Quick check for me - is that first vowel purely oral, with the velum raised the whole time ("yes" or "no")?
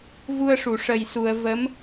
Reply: yes